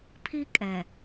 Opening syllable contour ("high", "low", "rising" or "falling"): high